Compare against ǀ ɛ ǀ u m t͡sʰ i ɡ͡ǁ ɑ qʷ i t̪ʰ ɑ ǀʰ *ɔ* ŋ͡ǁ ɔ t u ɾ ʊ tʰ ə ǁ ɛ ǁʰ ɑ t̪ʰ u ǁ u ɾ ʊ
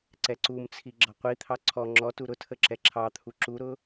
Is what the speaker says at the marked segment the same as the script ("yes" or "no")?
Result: yes